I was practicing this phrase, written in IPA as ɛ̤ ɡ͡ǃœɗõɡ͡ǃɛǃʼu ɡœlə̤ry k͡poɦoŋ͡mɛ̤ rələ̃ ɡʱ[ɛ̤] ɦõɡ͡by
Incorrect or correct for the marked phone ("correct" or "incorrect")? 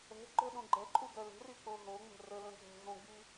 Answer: correct